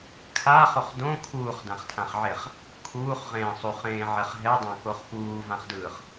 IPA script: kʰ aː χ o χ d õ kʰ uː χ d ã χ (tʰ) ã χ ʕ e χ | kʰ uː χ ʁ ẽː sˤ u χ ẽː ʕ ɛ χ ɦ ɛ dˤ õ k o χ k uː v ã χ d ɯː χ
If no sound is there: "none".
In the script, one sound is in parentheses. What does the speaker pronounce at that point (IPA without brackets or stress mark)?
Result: tʰ